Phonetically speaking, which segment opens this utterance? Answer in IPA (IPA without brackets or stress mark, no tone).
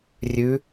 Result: rʲ